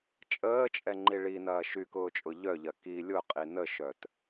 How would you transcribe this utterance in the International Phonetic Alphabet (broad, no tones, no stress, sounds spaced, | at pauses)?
t͡ʃʼ əː t͡ʃʼ ɛ ŋ͡ǃ i ɭ i n ɐː ʃ y k ʊː t͡ʃʼ ʊ ʎ œ ʎ ɐ k i lʲ ʊ qʼ i n ə ʃ œ t